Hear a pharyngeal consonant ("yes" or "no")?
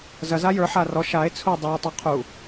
yes